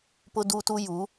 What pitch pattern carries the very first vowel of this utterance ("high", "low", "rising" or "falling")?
high